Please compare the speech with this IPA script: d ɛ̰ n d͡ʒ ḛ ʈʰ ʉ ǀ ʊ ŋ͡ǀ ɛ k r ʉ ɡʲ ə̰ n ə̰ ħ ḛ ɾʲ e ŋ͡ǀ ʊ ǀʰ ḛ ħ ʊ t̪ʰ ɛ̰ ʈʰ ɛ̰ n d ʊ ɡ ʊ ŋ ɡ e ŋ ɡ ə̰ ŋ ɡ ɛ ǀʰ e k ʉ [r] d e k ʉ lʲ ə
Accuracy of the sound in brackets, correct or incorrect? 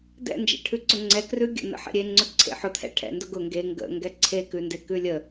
incorrect